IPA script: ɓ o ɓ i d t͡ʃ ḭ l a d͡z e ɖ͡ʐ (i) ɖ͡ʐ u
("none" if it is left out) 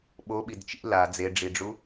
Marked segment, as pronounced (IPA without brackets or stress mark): i